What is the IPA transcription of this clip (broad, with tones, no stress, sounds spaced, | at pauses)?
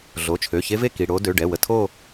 ɮ o˩˧˩ t͡ʃʰ ø˩˧˩ ç e˦˥ v e˥˧ k i˩˧˩ ɽ o˦˥ d ø˩˧˩ ɖ ɛ˩˧˩ w ə˧ tʰ o˥˧